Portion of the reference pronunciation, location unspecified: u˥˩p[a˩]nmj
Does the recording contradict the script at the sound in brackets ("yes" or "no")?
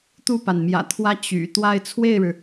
no